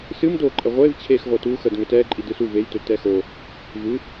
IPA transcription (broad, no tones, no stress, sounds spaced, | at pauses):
s ɨ m d oː ǃʼ ɛ ʁʷ e v t͡ɕʰ eː x ʁʷ əː t uː x ə d ŋ ø t ɛː ǃʼ i d ɨ s u v e j t ø t ɛ x o | v ɨ